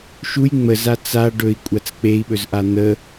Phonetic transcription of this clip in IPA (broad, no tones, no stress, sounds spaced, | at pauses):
ʃ u j ŋ͡m ə z a t͡s a ɖ ɵ i̯ kʷʼ a t͡s k͡p e i̯ ɓ ɵ z ʔ a n̪ ə